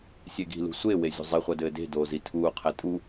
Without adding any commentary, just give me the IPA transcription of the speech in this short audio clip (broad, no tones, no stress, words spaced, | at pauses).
sʲeɡi̤lṳ sʷewe zʲṳzˤiχʷɐ dɘːde̤doː zitʰuːqʰɛ tʼu